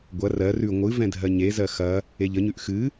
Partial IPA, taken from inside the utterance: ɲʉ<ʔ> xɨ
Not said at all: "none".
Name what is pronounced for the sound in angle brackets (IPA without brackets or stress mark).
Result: ʔ